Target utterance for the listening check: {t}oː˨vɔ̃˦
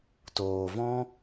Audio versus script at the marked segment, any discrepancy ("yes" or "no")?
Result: no